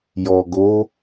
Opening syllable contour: low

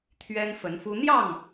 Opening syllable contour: high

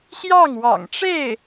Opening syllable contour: falling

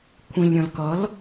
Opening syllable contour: low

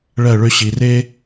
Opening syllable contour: falling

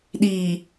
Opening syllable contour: low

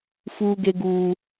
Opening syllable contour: high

